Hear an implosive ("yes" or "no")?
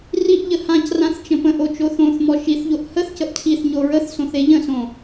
no